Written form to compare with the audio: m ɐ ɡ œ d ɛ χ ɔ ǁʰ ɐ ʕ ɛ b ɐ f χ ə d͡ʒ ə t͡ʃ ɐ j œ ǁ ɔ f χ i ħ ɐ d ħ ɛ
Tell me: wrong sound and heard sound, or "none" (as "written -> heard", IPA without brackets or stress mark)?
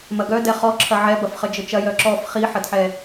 none